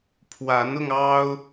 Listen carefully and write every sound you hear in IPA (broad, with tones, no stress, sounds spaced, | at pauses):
pʰ w a˨˦ n ʊ˧ ŋ ɑ˦ ʊ̯